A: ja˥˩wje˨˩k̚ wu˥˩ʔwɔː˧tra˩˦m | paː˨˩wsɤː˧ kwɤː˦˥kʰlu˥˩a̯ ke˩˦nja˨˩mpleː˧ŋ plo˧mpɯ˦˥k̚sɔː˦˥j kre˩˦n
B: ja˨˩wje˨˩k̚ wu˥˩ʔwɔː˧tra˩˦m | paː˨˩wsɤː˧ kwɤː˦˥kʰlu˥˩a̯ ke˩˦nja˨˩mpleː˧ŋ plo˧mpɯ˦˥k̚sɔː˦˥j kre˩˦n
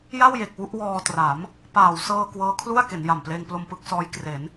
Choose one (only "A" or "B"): A